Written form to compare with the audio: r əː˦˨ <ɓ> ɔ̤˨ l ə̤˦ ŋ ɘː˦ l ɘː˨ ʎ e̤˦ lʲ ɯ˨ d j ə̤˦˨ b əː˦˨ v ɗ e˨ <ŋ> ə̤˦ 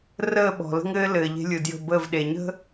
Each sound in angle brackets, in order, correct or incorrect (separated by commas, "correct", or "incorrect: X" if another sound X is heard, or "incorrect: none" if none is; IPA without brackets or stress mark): correct, incorrect: ɲ